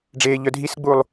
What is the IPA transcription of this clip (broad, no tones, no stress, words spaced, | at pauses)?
ɖ͡ʐeːʎœdʱisɡ͡buːlˠ